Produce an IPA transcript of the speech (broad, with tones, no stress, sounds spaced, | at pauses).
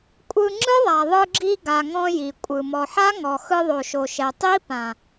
kʷʼ ɯ˧ ŋ͡ǁ ɯ˦ ðˤ a˨ ðˤ ɯ˧ ɡ͡ǁ i˧ ɡ a˨ ŋ ɔ̃˧ j i˨ kʷʼ ɯ˨ m ɔ˨ ħ a˦ ŋ ɔ˨ x ɯ˧ ðˤ o˨ ʃ o˨ ʃ ɛ˨ tˤ i˦ p ã˨